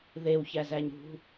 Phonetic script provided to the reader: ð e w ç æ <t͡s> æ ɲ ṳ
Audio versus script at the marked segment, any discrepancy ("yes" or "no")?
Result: yes